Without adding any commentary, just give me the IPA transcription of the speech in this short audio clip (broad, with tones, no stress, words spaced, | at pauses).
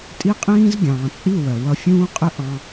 tʼi˦qʼĩː˦z ɡʲɑ̃ː˨t͡sʼi˦˨ wɜ˨ wʌ˧fʲũː˦qʼɪ˦ ʔɑ̃˦